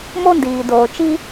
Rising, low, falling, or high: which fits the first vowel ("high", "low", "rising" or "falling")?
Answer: high